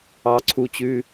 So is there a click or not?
yes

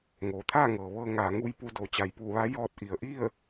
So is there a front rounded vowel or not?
no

